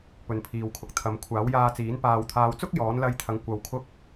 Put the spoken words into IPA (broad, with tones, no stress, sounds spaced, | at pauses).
p ɵ˨ n pʰ iː˨ w kʰ ʊ˨ k̚ t̪ʰ ɐ˨ m kʷʰ aː˨˥ w j aː˧ t͡s iː˨˥ n p aː˨ w t̪ʰ aː˨˧ w t͡s ʊ˥ k̚ j ɔː˨˥ n l ɐ˧ j t̪ʰ ɐ˨˥ ŋ kʷ ɐ˨ w kʰ ʊ˧ k̚